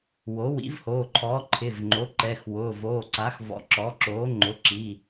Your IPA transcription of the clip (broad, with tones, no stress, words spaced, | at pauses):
wo˩˥wḭ˩˥vhoː˩˧˩ǃʰɔː˩˥ ǃʰɪ˩˧˩vŋ͡ǃo˩˥ǃɛ˩˧˩x wʊː˩˧˩voː˩˧˩ǀa˩˥xvɔ̰˩˥ ǁɔ˩˥ǁoː˩˥ ŋ͡ǃʊ˩˧˩ǁi˩˧˩